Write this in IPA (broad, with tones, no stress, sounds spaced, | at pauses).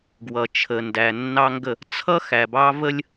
ɡ w ʌ˨ t͡ʃʰ ə˨ n d æ˨ nː ɑ˦ ŋ ɡ ə˦˨ | t͡sʰ ʌ˦ x æ˨ b ɑ˦ v ə˦ lʲ